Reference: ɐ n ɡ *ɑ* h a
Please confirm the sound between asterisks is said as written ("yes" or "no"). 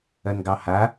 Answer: yes